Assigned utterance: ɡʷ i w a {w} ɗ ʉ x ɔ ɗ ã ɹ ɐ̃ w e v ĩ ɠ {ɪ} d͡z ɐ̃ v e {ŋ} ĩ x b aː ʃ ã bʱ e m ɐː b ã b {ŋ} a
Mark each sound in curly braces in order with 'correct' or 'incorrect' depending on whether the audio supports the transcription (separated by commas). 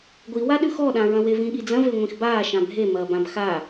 incorrect, incorrect, incorrect, incorrect